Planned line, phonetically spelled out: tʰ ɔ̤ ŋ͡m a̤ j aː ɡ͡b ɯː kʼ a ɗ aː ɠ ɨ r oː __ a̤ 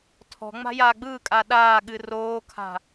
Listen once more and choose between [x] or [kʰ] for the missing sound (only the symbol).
kʰ